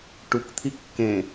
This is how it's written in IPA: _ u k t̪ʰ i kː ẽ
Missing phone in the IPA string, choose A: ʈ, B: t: A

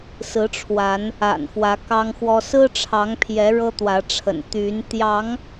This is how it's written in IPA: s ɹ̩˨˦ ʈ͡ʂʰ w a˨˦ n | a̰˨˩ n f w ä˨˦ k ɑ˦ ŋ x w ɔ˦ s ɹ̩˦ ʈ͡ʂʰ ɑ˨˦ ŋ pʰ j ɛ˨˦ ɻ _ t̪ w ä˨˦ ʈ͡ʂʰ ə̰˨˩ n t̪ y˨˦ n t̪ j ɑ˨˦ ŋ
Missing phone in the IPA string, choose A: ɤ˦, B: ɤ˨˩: A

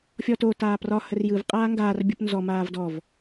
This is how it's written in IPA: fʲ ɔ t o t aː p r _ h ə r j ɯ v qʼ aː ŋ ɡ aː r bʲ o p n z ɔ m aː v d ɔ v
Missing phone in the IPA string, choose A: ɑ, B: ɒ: B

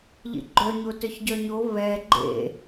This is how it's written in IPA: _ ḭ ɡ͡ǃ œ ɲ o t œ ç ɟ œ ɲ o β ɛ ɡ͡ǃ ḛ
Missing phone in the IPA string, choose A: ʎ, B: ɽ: A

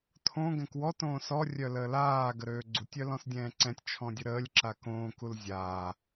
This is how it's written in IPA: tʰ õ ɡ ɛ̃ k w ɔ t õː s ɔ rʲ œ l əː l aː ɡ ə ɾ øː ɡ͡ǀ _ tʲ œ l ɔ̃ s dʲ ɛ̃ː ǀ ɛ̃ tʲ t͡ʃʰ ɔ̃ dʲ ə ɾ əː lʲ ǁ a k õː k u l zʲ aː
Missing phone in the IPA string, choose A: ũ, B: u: B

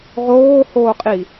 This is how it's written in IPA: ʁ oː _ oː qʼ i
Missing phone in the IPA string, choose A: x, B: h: B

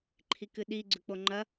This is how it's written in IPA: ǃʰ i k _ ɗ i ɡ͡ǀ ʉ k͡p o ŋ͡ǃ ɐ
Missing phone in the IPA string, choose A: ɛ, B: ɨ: B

